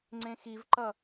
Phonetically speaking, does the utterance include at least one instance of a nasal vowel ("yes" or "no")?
yes